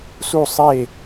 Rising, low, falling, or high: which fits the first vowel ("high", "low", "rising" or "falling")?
falling